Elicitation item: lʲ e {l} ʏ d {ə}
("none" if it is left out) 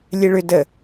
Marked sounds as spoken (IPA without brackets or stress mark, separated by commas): ɭ, ə